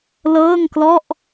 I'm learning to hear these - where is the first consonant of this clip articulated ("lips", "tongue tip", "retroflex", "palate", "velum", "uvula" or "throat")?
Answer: tongue tip